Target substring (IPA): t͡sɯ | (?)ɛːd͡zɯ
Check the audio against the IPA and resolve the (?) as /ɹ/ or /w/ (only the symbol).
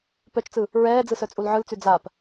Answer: ɹ